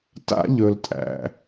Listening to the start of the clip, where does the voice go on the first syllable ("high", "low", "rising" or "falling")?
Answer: high